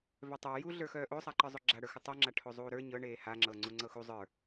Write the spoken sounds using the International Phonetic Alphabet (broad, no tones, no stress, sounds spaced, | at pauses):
v œ tˤ ə˞ j u ɮ ə˞ x œː ʔ o sˤ a ǃ ə˞ zˤ o ɡ͡ǁ a ɽ ə˞ x ʏ tˤ o ŋ͡ǁ a ʈʰ o zˤ uː ɾ ə˞ ɲ ɤ ɳ eː h a ŋ͡ǁ ɤ ŋ͡ǀ u ŋ͡ǀ ɤ x u zˤ ə˞